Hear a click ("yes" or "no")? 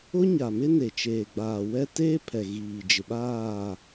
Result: no